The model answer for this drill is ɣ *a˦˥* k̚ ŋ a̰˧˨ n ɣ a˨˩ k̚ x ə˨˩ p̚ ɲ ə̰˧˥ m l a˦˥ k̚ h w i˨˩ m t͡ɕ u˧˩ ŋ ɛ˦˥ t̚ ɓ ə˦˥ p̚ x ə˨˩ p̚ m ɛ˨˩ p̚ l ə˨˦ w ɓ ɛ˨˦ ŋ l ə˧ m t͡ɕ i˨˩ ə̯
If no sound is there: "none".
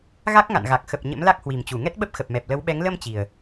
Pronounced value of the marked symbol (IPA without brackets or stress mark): a˦˥